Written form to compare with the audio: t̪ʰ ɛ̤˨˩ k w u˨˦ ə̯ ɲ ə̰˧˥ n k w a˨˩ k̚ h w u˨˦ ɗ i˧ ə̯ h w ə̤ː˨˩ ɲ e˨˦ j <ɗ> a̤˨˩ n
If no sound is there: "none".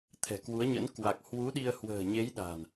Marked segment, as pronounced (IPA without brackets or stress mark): ɗ